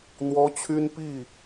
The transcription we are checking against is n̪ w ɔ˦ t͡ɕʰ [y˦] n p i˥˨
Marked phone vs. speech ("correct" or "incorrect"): correct